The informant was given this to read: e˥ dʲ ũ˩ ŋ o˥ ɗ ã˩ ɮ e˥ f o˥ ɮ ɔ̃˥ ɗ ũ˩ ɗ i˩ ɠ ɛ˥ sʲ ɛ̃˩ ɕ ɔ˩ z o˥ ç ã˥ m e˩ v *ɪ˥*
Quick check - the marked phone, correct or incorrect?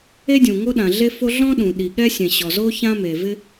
correct